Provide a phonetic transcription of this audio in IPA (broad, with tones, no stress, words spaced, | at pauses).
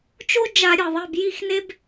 t͡ʃo˥d͡ʒa˧˩˧ ɾʲɯ˩ðˤi˩˧˩b ji˥˨xne˥b